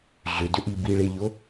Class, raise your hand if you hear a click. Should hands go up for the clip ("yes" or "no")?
no